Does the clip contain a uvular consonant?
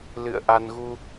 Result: no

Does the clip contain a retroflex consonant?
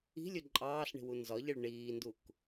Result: yes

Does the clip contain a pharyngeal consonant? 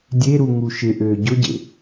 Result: no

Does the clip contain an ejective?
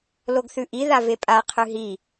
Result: yes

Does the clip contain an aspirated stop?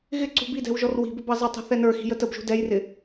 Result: no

